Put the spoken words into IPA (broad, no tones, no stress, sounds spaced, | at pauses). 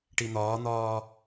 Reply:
ʈ i n̪ ɒː n̪ ɒː